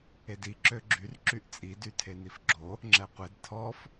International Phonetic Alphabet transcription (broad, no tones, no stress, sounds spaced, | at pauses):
e d i ǁ ø ɡ͡ǁ y r ǁ y ʔ t͡sʼ i d y tʰ e n i f ɡ͡ǁ o | ŋ͡ǁ ɛ qʷ e d tʰ ɔ f